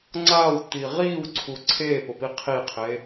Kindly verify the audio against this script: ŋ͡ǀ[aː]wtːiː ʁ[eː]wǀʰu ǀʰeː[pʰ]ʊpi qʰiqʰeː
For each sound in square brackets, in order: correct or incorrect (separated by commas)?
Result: correct, incorrect, incorrect